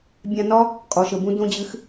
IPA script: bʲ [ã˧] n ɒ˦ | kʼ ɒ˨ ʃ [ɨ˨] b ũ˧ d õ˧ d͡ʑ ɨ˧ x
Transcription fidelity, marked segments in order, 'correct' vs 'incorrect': correct, incorrect

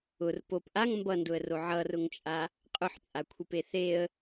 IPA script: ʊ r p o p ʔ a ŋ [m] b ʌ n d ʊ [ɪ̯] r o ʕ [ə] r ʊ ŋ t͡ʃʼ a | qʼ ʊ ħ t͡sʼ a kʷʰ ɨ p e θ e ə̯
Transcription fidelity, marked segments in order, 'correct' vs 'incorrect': correct, incorrect, incorrect

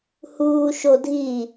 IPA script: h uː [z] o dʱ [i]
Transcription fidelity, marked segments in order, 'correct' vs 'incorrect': incorrect, correct

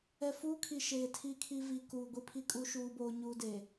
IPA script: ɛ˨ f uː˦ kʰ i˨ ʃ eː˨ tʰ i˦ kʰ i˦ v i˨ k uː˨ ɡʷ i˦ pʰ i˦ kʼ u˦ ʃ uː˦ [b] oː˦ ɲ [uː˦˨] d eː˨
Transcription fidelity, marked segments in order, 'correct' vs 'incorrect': correct, incorrect

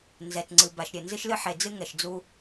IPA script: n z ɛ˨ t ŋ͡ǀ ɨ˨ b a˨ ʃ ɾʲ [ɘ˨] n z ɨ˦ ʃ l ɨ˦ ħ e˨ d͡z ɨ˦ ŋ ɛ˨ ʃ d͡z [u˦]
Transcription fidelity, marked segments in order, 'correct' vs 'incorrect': correct, correct

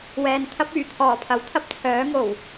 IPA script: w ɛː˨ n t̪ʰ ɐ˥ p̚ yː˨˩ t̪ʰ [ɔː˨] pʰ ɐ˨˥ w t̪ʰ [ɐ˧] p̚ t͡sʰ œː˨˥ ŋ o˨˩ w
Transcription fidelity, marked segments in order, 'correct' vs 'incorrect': incorrect, incorrect

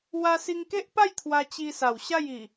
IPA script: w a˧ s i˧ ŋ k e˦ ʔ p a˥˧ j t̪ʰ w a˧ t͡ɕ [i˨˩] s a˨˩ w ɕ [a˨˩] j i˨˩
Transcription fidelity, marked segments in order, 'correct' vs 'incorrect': incorrect, incorrect

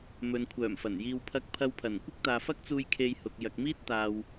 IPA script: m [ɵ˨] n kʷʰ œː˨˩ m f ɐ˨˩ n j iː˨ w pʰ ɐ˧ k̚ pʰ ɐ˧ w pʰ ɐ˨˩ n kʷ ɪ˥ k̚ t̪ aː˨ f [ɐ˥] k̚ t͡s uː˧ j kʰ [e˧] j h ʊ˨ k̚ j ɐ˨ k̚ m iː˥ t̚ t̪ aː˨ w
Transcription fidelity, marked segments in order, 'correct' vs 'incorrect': correct, correct, correct

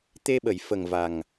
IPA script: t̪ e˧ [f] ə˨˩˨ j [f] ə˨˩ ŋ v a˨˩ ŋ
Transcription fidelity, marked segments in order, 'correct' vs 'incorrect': incorrect, correct

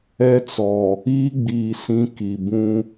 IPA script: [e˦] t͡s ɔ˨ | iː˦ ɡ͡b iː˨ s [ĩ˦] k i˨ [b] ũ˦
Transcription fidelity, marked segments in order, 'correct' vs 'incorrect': incorrect, correct, correct

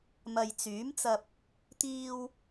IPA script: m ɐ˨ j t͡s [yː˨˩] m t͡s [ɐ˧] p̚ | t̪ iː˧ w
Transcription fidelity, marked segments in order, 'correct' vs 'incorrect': incorrect, correct

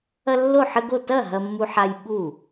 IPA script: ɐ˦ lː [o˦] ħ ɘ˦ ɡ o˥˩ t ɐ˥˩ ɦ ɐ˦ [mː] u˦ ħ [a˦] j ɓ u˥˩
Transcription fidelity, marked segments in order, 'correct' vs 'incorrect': incorrect, correct, correct

